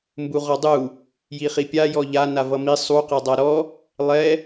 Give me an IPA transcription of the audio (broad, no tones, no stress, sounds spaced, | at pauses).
m b u ʁ ɔ dˤ u | j i χ i pʲ a j ɔ ʎ a n a v ʌ m i sˤ u q e dˤ a ɾ ɔ | lˠ ɛ